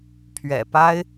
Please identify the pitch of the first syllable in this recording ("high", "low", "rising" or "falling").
low